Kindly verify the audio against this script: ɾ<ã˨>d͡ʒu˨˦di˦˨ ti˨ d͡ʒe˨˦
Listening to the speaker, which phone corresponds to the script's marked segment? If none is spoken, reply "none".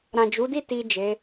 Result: ã˨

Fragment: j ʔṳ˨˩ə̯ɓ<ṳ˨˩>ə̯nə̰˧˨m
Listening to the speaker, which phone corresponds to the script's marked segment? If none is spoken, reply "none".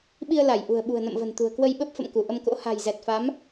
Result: ṳ˨˩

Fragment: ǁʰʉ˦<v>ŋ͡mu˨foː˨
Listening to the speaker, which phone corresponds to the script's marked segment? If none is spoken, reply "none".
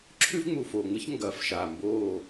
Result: v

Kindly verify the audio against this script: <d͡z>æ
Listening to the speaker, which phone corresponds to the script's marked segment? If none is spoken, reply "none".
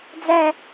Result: d͡z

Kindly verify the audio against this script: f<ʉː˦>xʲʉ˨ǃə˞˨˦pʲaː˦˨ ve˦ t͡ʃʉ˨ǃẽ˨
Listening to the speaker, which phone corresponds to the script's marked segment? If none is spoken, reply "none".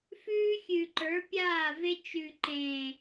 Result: ʉː˦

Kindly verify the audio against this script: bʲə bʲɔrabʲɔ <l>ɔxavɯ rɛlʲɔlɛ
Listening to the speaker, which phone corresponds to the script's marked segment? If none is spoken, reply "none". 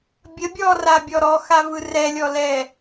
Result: ɾ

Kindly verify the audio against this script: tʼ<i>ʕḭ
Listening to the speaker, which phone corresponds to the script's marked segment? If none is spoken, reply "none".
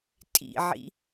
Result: ḭ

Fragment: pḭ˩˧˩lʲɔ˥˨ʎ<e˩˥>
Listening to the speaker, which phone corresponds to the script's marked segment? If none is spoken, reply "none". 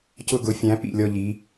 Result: i˩˥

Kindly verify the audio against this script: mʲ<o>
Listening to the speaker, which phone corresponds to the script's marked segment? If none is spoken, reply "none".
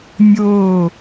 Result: o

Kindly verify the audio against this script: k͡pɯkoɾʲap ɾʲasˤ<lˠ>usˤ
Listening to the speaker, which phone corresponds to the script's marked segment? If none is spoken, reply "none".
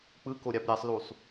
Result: l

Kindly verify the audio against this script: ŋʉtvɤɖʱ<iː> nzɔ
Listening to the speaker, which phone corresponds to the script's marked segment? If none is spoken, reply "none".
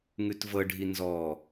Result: i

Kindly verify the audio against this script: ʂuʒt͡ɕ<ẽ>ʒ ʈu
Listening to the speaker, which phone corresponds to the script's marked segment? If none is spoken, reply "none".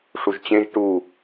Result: ẽ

